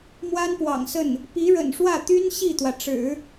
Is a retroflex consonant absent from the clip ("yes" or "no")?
no